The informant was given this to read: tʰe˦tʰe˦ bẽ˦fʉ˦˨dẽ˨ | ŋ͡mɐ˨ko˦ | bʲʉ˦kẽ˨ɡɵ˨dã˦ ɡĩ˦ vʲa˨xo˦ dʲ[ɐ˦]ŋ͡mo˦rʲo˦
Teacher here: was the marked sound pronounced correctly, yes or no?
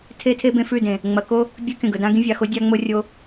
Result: no